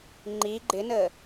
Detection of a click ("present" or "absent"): present